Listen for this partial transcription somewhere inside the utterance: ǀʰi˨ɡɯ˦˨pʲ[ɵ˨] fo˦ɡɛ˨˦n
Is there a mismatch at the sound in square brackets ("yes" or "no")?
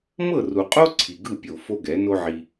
yes